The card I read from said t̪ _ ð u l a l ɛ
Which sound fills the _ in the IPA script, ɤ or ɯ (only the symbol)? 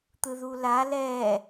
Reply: ɯ